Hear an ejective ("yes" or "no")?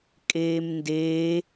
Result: yes